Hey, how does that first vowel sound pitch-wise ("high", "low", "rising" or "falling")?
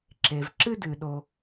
low